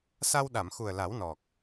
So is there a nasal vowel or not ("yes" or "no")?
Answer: no